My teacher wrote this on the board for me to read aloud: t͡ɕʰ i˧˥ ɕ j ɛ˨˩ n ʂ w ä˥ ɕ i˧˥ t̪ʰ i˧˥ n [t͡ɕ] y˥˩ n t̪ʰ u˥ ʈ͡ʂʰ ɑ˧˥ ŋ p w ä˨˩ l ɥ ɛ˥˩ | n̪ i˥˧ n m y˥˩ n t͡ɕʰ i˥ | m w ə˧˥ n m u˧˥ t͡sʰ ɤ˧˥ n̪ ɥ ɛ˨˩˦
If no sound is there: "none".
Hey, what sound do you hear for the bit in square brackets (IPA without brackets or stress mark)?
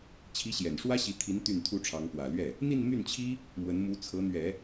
t̪